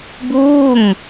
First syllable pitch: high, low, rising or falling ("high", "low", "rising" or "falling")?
falling